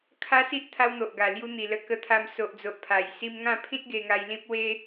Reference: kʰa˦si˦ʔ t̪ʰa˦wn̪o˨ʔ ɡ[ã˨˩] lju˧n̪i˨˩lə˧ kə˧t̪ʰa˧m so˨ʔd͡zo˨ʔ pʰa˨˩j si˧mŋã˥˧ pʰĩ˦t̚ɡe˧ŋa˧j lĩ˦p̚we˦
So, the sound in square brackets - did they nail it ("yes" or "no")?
no